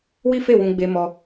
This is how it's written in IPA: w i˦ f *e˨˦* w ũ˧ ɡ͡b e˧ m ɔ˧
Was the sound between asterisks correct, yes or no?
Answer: no